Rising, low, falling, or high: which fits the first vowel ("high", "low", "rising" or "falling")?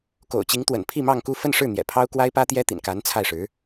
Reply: low